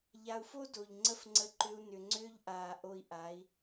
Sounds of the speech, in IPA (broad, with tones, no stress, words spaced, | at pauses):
ʎa˨u̯fo˦ do˨ʎŋ͡ǀə˦f ŋ͡ǀə˦ǃʏ˦u̯ nʏ˨ŋ͡ǀʏː˦ʎʔaː˨ ʔo˦i̯ ʔa˨˦i̯